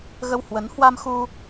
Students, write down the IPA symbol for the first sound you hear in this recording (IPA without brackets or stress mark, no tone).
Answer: ɣ